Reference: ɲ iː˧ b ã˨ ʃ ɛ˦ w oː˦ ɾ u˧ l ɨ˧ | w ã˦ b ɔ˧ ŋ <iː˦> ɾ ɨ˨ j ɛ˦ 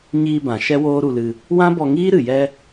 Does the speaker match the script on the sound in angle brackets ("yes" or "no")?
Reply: yes